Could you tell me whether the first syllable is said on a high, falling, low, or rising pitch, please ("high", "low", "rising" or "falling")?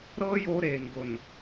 high